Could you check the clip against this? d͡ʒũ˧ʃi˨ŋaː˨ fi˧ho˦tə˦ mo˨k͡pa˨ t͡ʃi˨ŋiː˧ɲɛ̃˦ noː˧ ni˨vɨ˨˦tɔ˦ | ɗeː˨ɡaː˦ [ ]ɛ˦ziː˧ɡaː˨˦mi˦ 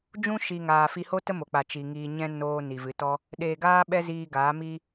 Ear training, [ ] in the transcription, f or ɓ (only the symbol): ɓ